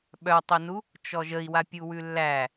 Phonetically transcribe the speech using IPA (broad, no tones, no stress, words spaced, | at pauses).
ɓœtˤinu | t͡ʃɔʒəi̯wa pʲuwʉlːæ